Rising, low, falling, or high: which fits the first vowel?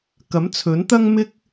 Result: rising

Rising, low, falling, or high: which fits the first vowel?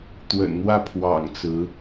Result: low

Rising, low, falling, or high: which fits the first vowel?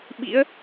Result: rising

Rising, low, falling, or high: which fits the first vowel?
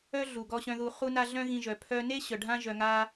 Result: high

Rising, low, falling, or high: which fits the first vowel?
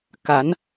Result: rising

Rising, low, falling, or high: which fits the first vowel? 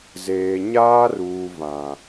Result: low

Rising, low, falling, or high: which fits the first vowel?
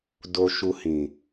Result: low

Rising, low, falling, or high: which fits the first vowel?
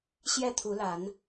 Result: falling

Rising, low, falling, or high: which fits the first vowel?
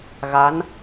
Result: rising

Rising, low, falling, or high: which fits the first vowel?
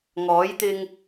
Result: rising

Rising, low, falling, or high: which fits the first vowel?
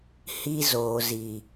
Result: high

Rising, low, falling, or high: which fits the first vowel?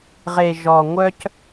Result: low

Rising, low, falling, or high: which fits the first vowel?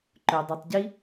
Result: low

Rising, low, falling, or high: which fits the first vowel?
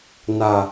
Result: low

